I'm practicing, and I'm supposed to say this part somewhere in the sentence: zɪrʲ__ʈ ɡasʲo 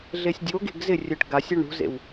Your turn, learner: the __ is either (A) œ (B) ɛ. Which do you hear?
A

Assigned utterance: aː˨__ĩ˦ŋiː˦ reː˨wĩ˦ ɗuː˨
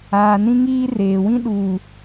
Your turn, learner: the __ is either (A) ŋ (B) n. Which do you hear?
B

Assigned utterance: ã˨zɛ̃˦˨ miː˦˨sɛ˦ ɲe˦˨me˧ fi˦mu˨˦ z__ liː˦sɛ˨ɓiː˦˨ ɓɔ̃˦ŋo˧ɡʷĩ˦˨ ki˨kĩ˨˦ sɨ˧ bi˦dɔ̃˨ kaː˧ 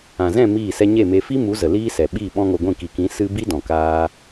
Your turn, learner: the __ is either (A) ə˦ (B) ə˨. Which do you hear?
B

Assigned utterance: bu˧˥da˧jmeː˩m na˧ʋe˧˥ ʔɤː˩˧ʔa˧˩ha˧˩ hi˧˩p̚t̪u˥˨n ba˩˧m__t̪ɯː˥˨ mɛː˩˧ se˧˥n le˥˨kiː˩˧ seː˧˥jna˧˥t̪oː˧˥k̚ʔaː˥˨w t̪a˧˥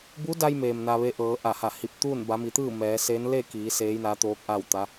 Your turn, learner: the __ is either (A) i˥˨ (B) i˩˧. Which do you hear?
B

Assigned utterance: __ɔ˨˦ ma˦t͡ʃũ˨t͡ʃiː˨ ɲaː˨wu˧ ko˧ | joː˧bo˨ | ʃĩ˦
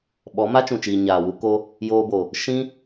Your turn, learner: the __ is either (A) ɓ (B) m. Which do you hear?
A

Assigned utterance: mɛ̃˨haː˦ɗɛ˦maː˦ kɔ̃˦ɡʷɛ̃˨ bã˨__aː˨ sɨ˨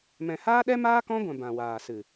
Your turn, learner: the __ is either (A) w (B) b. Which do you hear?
A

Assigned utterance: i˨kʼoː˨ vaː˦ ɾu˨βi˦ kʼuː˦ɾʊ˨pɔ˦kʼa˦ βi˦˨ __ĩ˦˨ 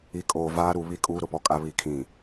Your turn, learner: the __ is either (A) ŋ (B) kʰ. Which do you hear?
B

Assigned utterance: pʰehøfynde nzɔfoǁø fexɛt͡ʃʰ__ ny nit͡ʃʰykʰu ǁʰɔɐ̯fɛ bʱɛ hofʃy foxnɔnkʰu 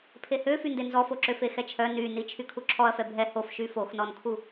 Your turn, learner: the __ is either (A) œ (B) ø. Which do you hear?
A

